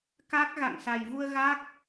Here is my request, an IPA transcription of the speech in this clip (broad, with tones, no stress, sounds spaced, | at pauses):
k a˦˥ k̚ ɣ a̰˧˨ ŋ s a˨˩ j v u˧ ə̯ ɣ a˦˥ k̚